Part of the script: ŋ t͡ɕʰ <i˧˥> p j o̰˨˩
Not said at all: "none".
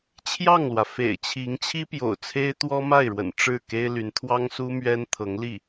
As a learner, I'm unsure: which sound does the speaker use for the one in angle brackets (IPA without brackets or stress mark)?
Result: i˥